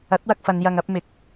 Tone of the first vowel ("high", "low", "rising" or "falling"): rising